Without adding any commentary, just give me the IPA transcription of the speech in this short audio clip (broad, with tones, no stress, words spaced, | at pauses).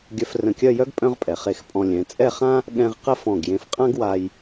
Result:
ɡʲœ˧frə̃˧˩kʲœ˥˧jœ˥ɡ pʼœ̃˥ʁpʼɛ˩˧ χe˧xpʼɔ̃˧ lʲɛ̃˩˧t͡sʼɛ˥˧χã˥ | ɠɛ̃˧ʁ qə˥˧fɔ̃˧˩ɡjẽ˧f qʼã˥ɡwa˧j